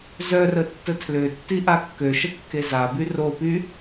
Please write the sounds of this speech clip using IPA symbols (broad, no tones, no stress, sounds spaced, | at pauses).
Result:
z œ r ə tː ə tʰ l ø tː i ʔ a kː ø ʃ ə kː e z a b y r o p y